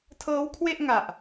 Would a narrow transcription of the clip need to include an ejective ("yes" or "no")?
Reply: no